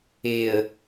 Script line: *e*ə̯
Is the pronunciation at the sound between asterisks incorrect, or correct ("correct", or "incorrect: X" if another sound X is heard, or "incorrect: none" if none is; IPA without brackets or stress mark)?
correct